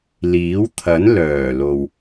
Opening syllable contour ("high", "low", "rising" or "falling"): rising